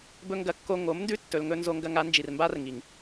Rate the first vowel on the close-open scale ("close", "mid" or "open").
mid